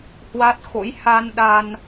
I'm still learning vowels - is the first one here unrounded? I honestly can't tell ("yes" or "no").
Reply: yes